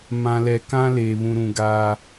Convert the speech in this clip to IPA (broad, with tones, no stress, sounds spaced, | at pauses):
m ã˨ l ɛ˨ k ã˦ l eː˨ β ũ˨ ɾ ũ˨ ɡ aː˦